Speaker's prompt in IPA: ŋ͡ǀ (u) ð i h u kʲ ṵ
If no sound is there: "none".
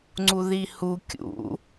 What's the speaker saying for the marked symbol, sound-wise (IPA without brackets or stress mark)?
u